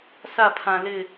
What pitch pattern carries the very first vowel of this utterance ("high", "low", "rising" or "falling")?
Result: falling